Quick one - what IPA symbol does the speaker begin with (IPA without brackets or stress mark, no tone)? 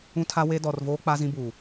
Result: ũ